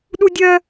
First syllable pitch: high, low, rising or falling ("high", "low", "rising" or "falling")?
high